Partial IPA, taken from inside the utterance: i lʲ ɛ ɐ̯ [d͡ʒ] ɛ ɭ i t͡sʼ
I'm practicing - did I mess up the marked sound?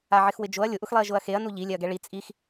yes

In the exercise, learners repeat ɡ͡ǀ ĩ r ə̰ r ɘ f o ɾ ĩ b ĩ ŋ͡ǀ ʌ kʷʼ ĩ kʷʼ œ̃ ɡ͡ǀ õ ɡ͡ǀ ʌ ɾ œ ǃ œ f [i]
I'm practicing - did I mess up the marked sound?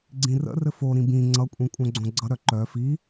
no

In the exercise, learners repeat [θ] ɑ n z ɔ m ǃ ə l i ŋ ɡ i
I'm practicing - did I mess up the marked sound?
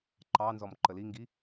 yes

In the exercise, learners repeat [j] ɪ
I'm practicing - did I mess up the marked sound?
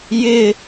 no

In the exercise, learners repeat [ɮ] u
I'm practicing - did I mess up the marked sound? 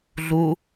no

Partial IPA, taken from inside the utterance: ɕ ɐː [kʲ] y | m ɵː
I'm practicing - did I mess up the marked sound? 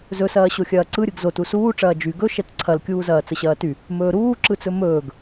yes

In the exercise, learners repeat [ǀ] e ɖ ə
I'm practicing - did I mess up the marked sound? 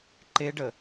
yes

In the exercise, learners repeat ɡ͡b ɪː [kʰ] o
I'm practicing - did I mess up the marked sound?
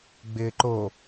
yes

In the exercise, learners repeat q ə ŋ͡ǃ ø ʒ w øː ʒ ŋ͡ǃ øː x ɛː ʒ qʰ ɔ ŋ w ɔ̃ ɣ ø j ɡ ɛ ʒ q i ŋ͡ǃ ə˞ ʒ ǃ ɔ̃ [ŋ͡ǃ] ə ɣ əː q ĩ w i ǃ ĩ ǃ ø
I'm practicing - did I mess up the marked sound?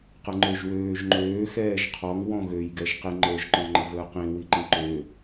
no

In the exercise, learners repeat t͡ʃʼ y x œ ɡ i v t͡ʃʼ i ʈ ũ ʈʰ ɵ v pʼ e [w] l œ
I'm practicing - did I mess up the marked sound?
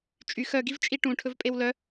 no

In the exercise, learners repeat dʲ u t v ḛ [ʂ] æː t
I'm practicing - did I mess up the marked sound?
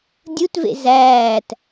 yes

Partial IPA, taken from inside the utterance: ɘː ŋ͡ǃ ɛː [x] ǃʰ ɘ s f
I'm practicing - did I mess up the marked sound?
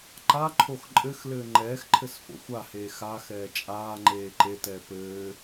no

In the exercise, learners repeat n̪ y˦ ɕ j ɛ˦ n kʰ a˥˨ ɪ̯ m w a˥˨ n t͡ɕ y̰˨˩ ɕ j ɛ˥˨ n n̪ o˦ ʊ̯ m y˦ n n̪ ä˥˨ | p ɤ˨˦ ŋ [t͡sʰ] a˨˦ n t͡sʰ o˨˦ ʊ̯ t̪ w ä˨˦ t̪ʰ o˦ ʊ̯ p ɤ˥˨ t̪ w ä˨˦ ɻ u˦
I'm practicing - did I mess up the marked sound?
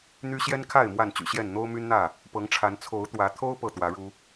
yes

